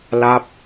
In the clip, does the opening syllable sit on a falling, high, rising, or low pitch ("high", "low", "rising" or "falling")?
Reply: falling